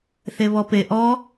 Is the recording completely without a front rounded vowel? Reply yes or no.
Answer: yes